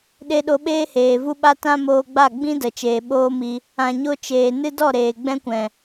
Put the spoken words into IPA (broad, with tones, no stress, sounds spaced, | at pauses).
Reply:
ɗ e˧ ɗ o˧ ɓ eː˦ h eː˨ v u˦ ɓ a˦ t ã˦ m oː˧ ɡ͡b a˦˨ ɡ͡b ĩ˦ d ə˨ t͡ʃ eː˨ ɓ oː˦ m i˧ | ã˨ ɲ o˧ t͡ʃ eː˨ n ɨ˦ d ɔ˦˨ ɾ eː˨ ɡ͡b ɛ̃˦ kʷ ɛ̃˨